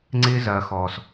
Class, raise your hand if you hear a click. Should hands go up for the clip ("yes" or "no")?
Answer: yes